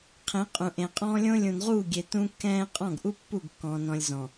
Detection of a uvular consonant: present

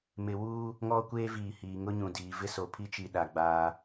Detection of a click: absent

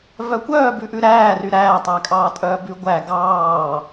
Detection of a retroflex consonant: absent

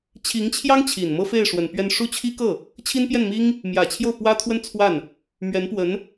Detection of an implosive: absent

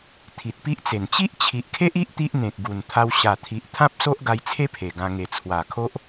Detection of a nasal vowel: present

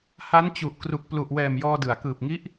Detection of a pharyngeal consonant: absent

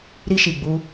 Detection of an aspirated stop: absent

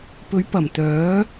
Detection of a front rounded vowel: present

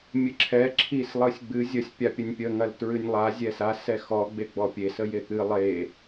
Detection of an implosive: absent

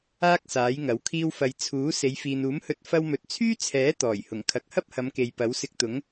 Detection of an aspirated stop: present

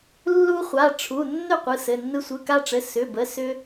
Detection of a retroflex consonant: present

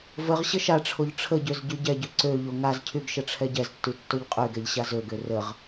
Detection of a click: present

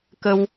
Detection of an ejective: absent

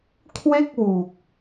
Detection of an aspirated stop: present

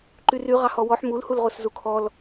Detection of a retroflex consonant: absent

